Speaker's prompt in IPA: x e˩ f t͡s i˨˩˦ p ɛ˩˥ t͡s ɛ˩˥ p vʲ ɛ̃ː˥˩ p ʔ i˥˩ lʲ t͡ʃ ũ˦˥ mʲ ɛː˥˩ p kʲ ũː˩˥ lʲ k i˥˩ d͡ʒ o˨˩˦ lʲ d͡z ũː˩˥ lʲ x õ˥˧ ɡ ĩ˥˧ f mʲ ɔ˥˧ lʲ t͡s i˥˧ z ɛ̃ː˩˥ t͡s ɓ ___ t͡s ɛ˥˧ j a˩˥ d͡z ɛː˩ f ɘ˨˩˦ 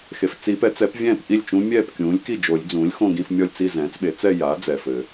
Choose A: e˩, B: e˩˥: B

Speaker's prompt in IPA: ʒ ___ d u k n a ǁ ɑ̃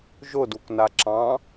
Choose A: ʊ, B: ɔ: A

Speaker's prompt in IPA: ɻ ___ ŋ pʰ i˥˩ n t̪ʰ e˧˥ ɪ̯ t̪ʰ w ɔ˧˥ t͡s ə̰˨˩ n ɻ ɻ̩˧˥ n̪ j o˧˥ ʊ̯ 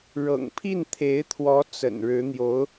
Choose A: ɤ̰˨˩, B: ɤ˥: A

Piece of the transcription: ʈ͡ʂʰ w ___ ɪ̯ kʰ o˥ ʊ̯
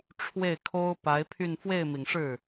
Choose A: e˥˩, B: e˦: A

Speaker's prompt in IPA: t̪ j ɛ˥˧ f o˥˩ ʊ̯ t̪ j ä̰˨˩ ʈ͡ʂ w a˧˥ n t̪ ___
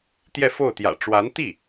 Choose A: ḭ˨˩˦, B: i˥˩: B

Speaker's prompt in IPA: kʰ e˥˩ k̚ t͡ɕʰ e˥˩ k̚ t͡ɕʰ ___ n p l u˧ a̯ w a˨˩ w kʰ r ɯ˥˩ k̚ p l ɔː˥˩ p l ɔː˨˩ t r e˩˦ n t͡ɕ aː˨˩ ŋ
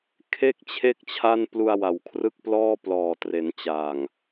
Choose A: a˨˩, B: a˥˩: B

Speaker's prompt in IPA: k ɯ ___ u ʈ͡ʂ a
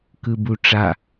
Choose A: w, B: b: B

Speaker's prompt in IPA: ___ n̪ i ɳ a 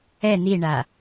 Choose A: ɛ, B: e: A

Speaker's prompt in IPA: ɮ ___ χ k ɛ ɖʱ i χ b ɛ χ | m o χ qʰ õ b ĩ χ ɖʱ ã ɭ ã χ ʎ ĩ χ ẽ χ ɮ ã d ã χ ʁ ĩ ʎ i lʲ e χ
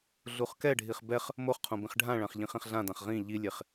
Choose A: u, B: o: A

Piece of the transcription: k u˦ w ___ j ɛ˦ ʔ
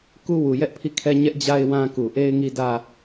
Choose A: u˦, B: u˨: B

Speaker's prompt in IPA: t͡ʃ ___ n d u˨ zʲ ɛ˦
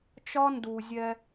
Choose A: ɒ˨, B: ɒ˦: B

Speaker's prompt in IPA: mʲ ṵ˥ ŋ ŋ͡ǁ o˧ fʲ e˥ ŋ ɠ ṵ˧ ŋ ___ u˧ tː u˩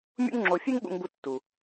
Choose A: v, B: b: B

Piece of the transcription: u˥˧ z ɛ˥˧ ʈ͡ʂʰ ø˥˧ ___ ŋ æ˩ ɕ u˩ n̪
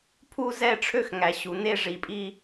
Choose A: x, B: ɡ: A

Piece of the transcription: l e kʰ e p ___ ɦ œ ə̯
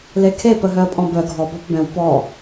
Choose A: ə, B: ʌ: A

